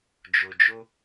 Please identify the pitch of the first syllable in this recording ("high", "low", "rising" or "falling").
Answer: low